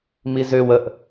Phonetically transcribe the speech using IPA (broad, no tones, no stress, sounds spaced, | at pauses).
m i z ø w ə ʔ